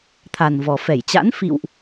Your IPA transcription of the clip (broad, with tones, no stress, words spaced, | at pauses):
t̪ʰa˨˩nvɔ˨˩fɛ˧˩jt͡ɕa̰˧˥n fḭ˧˨wʔ